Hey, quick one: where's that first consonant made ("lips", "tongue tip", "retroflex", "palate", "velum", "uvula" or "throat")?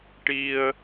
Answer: retroflex